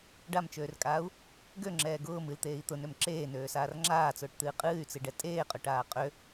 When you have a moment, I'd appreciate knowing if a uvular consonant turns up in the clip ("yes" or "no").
yes